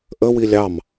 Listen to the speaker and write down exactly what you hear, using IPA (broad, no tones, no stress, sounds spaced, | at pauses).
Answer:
ʔ ə w i lʲ ɑ m